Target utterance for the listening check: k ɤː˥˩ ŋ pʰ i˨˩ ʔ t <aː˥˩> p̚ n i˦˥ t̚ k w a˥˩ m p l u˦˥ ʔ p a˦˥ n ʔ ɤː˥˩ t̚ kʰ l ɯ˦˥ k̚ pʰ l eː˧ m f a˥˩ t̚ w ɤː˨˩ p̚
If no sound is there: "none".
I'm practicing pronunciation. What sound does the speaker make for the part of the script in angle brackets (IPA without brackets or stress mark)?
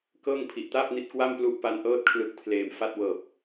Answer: aː˥˩